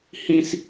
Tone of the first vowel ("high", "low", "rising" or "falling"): high